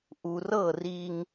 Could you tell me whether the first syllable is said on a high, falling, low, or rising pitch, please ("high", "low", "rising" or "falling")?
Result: low